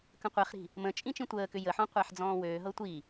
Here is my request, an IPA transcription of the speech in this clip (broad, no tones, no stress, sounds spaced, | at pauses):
k ə̃ qʷ ɛ χ ɾ i̤ | m ə̃ t͡ʃʼ ĩ t͡ʃ ĩ tʷ əː k ʏ j ə ħ ɔ̃ qʷ a ħ d͡z ɔ̃ː w øː ɦ ɤ tʷ i